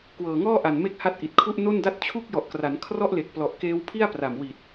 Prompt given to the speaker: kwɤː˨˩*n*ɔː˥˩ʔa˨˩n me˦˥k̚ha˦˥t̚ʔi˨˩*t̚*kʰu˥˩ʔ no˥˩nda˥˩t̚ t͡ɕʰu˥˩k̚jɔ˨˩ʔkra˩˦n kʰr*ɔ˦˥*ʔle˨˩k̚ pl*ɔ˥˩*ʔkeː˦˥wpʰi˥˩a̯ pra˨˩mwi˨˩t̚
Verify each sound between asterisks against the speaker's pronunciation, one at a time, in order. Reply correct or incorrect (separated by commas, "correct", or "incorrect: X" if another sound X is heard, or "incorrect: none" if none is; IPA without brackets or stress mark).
incorrect: ŋ, correct, correct, incorrect: ɔ˨˩